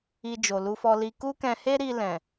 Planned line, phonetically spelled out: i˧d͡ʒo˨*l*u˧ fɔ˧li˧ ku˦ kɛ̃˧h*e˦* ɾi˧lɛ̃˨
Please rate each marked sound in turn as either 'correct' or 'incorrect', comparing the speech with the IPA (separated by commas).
correct, correct